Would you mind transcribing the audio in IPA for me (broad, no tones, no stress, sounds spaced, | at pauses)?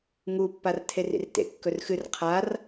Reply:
ŋ u pː a r tʰ e r ḭ r t ḛ kː ɵ r x ɨ r qʰ a r